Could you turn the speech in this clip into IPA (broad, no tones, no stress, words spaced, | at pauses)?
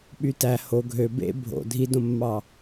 ɓytæ ho ɡʱø bḛ bʱo̰ dʱidõmːɑ